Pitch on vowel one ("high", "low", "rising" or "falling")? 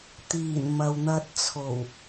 low